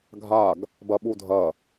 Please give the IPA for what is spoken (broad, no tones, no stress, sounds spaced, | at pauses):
ɡʱ a ɡ | b ɐ ɓ u dʱ ɐ